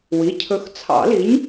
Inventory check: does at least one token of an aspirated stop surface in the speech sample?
yes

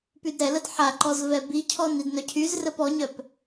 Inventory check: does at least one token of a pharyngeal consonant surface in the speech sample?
yes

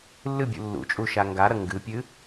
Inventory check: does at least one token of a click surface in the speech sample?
no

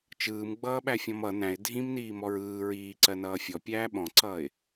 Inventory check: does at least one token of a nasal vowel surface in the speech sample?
yes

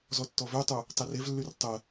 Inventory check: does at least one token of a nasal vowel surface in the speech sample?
no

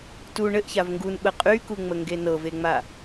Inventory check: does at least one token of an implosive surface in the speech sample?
yes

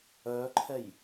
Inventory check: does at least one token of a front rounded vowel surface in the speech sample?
yes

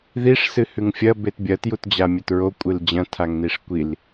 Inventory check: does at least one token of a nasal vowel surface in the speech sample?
yes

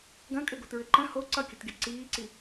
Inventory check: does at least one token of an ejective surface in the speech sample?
yes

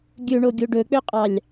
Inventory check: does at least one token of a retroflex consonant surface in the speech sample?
yes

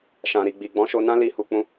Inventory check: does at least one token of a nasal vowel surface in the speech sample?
yes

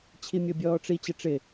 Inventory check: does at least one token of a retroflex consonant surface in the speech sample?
yes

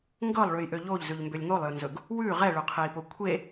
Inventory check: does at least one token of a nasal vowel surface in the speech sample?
no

